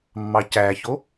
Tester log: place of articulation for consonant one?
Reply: labial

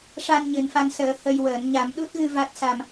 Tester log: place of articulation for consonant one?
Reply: retroflex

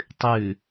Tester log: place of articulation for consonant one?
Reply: alveolar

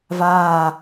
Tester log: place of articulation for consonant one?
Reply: labial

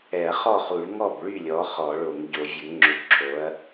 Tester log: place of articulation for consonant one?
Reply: uvular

